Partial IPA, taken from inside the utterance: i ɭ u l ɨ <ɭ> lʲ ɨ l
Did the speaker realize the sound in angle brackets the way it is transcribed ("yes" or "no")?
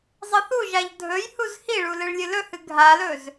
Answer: yes